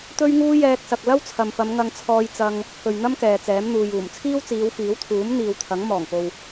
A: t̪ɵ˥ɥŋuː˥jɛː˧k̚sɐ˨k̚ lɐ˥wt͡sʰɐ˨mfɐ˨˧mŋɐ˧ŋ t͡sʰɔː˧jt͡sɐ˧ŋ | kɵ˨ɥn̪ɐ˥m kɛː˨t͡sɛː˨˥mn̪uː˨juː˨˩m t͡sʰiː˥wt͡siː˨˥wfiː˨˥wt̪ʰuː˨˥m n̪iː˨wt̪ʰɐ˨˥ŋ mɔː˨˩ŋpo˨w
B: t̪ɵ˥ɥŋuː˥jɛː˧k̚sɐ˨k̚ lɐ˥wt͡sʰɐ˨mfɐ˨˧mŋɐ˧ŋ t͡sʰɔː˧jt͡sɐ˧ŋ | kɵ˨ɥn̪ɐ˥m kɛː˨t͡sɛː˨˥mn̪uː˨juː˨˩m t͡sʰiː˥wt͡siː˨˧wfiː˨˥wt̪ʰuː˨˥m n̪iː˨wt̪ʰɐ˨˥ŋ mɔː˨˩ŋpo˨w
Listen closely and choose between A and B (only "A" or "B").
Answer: B